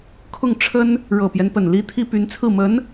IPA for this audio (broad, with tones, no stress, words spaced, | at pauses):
kʰʊ˥˩ŋʈ͡ʂʰə˥n | ɻɤ˨˩pjɛ˦npə˨˩n li˥t̪ʰi˥ py˧˥nt͡sʰɹ̩˥˩mə˧˥n